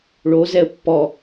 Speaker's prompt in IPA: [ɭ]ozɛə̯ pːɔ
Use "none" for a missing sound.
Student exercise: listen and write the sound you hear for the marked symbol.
ɭ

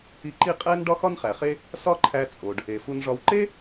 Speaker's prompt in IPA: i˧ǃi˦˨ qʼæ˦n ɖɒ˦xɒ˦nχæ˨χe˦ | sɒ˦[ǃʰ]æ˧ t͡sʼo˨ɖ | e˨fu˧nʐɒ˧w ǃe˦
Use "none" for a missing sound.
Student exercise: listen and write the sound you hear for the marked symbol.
ǃʰ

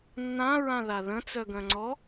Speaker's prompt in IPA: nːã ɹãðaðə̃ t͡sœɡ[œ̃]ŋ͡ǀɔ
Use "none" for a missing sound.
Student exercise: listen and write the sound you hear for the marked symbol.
œ̃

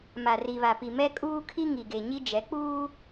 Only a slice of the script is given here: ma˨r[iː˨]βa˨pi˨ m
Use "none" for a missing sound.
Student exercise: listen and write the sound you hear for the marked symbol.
i˨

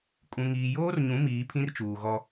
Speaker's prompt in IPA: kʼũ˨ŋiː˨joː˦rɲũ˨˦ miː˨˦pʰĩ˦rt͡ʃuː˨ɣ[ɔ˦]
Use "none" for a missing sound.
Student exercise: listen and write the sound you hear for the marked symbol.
ɔ˦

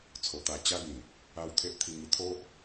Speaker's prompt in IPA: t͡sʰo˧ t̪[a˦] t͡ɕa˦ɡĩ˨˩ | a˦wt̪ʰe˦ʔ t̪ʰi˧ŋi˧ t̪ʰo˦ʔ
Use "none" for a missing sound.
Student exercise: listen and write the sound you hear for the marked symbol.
a˧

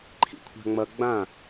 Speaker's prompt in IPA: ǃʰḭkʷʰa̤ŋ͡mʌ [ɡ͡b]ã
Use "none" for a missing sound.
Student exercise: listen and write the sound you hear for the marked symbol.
ɡ͡b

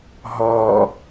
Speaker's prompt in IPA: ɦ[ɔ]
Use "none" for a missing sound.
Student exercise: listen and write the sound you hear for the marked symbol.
ɔ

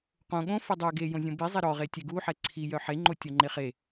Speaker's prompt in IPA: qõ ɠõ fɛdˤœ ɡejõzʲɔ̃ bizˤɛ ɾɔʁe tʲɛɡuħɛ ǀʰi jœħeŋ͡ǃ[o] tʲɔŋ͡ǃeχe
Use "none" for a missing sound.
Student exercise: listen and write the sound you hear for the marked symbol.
o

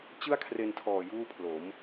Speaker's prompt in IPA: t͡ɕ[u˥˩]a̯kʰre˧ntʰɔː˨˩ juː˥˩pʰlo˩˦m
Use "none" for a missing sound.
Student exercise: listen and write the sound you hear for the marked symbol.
ɯ˥˩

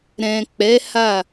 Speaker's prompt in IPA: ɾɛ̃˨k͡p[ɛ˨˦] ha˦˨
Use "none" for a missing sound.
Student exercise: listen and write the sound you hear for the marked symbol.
ɛ˨˦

